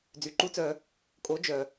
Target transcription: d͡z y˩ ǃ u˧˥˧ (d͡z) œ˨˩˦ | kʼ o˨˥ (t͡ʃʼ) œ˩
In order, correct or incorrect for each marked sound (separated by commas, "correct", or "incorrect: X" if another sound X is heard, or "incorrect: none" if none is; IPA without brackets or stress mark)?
incorrect: t͡s, incorrect: d͡ʒ